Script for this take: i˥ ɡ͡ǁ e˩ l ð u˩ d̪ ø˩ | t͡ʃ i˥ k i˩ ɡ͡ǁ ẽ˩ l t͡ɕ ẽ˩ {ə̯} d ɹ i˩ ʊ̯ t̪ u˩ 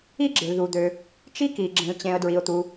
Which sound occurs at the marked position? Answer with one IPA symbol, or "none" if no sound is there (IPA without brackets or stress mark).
ə̯